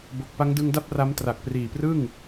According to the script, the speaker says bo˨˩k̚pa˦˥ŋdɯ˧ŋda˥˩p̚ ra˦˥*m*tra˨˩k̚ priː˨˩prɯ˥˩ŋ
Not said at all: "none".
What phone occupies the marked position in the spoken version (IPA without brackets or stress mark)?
m